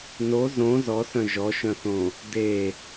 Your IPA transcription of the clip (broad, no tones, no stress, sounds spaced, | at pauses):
n o z õ z ɔ s œ̃ ʒ ɔ ʃ œ̃ θ õ | d e